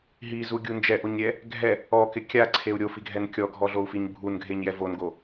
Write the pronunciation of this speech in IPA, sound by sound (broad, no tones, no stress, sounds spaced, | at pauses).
ɦ i z u ɡʲ u n d͡ʒ ɛ ʔ o ɲ ɾʲ ɛ | ɡʱ ɛ | ɔ k ɪ kʲ a ǀʰ e u̯ ɾʲ o f i ɡʱ ɛ n kʲ ɔ ɡʱ ɔ ɮ o u̯ f i ɲ bʱ u n ɡʱ e ɲ j ɛ v o n ɡ o